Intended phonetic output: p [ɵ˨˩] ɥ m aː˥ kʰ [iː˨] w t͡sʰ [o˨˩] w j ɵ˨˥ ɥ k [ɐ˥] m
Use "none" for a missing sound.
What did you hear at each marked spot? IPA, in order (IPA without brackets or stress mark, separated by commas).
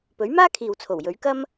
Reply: ɵ˨˥, iː˨, o˨˩, ɐ˥